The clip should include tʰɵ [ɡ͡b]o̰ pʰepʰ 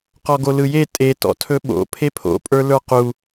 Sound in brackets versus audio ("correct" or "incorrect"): incorrect